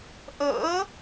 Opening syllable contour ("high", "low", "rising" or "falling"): rising